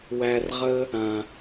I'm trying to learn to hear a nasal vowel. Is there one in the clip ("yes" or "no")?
yes